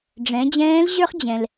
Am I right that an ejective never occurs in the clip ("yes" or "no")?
yes